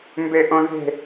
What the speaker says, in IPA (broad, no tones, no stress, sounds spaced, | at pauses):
m b e ʔ õ ð e̤